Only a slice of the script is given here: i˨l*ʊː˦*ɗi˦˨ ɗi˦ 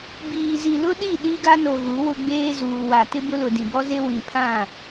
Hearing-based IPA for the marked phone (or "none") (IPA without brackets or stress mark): ʊ˦